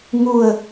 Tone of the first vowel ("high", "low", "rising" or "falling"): falling